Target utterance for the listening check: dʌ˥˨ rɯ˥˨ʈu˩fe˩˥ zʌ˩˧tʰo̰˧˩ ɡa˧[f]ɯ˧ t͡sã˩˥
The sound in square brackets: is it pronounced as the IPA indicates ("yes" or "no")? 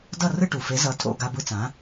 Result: no